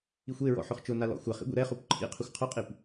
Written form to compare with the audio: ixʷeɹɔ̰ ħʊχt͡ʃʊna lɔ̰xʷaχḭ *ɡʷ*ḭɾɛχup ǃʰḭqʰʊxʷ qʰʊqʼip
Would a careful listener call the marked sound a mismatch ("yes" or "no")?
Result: no